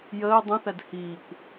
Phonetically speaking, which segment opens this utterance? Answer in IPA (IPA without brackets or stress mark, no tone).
j